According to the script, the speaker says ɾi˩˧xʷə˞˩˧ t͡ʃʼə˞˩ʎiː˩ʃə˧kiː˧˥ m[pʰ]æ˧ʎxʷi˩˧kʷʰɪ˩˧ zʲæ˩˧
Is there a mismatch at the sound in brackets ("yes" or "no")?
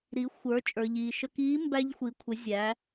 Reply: yes